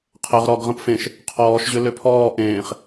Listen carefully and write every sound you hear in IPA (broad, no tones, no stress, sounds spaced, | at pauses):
qʰ ə ʁ ɾ ɔ ɡ ʁ ə̃ p f ẽ ʃ | qʰ ɔː ʃ ʑ ʏ l ʏ pʰ ɔː ʔ ẽː χ